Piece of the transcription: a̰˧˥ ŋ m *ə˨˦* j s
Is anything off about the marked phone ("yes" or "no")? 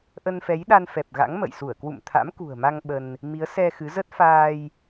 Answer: yes